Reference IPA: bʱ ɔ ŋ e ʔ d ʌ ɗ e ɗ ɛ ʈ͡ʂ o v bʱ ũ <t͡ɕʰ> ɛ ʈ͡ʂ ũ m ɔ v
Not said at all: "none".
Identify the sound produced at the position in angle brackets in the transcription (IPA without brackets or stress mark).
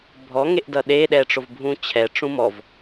t͡ɕʰ